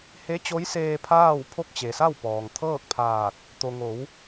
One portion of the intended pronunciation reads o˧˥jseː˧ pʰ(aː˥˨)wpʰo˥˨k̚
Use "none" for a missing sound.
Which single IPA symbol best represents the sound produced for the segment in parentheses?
aː˥˨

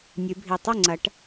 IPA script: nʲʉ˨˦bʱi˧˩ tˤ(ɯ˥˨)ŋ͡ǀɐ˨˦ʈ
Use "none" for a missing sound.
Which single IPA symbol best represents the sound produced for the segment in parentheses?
u˥˨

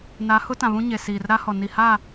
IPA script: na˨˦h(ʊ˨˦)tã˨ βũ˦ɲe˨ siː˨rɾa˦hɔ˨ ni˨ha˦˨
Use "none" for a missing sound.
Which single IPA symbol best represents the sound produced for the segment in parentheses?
ʊ˦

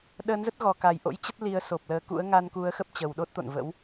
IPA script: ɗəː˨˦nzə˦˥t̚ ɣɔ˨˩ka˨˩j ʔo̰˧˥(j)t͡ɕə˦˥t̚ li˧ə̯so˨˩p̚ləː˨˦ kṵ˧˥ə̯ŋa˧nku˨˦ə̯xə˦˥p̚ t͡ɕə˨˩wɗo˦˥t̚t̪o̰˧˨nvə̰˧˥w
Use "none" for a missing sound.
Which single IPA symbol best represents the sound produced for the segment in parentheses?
j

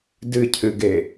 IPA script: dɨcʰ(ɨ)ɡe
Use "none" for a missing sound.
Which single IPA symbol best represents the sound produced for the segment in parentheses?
ɨ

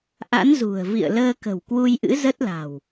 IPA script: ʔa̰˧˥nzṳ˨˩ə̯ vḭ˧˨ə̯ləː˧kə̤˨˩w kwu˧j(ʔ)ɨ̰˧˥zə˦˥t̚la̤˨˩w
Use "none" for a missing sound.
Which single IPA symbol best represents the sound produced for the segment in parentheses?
ʔ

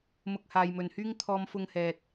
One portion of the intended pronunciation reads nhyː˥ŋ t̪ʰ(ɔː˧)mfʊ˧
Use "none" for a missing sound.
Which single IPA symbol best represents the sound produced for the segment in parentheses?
ɔː˧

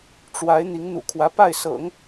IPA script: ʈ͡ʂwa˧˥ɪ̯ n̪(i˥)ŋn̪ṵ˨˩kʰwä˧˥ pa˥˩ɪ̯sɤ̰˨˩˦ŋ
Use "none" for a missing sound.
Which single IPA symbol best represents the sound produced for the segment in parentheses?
i˧˥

